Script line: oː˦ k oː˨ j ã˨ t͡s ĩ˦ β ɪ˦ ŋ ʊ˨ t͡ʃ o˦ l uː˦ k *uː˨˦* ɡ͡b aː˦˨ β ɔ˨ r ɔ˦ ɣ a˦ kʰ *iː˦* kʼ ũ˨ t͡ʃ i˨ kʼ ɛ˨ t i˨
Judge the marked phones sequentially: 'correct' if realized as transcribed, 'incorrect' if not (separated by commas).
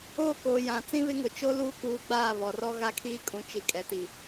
correct, correct